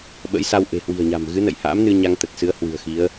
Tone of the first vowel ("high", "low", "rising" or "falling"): rising